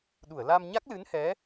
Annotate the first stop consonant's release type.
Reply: implosive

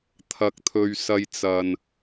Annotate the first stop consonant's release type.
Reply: aspirated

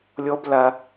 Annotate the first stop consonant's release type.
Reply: plain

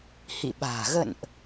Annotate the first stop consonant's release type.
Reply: implosive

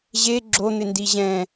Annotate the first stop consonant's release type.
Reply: click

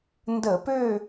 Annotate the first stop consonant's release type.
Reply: plain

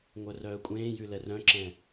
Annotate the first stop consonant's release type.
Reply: ejective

